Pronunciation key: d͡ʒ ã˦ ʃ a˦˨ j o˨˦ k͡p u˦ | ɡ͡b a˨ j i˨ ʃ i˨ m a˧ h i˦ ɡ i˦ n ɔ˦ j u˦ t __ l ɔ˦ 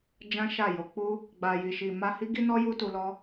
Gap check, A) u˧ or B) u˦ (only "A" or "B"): A